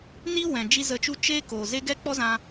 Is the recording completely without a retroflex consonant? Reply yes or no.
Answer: yes